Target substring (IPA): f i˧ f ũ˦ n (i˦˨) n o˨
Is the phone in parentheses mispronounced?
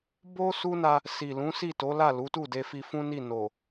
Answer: no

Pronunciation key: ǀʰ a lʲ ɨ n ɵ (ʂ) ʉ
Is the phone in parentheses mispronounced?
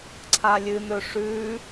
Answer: no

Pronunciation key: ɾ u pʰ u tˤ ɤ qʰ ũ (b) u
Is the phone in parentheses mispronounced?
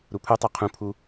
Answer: yes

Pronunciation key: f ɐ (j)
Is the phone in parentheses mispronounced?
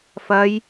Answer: no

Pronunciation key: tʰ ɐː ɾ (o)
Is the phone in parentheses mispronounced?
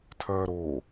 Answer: yes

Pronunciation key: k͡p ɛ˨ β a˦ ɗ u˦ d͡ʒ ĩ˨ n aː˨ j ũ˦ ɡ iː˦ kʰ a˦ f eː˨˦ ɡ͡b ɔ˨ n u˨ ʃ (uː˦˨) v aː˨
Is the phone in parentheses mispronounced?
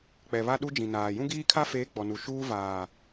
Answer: yes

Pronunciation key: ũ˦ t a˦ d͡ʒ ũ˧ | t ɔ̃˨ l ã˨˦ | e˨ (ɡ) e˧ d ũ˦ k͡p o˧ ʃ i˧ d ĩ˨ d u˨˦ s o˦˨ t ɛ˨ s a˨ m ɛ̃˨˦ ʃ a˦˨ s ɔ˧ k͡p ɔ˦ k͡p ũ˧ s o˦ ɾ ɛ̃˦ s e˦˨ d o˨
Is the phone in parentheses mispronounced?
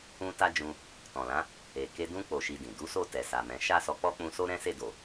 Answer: yes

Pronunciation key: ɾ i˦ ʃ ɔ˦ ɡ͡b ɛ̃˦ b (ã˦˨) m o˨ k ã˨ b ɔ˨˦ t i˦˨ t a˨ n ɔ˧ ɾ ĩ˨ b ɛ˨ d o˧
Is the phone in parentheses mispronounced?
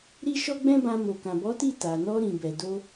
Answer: yes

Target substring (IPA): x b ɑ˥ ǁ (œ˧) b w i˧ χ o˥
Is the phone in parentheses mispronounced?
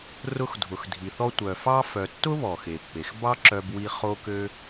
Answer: no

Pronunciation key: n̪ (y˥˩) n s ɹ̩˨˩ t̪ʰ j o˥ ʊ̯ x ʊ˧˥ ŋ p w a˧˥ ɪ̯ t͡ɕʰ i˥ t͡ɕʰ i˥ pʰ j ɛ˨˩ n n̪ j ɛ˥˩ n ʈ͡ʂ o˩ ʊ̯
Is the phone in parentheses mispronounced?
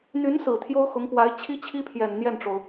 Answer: yes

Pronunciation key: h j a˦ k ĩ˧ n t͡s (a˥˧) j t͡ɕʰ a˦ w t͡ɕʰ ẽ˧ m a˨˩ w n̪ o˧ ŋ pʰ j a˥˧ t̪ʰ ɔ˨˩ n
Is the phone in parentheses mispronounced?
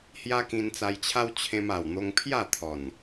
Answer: yes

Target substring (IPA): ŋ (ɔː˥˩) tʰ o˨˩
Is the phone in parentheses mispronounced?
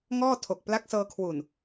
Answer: no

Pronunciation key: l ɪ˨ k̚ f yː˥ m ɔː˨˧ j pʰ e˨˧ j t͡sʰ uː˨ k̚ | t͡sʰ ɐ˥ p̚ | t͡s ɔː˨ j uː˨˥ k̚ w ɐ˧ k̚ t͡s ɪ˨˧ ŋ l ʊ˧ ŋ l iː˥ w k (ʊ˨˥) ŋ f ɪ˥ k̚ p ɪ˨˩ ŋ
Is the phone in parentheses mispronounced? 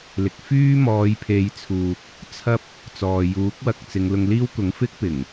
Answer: no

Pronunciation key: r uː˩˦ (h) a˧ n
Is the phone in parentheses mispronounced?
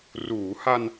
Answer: no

